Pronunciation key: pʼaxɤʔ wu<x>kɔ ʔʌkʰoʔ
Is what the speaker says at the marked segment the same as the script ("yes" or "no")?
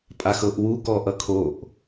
no